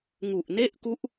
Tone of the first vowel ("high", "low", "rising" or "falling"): low